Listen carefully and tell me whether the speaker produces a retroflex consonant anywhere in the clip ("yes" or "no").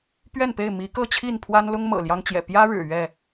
yes